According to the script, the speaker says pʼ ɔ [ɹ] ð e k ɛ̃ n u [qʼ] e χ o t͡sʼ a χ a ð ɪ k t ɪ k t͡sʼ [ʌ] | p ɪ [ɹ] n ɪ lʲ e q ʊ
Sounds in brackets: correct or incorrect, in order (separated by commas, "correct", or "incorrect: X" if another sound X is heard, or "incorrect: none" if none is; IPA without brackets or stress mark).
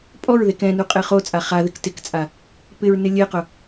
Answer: correct, correct, incorrect: a, correct